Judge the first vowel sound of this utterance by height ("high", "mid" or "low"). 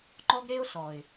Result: mid